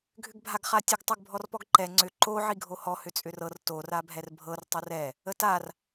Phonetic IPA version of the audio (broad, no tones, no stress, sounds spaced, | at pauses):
ɡʱ ʏ ɡ bʱ a ɡ χ a tʲ ə ɡ tˤ o ɡ bʱ ɔ r p ɔ ɡ ǃ ɛ ŋ͡ǀ ʏ ǃ o ʕ i ɡʱ o h ɔ h ʏ t͡sʼ ʏ r ɤ r t o r a bʱ ɛ r bʱ ɤ r tˤ o r ɛ | ə t a r